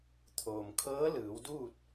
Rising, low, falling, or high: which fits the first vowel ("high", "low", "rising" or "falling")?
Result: low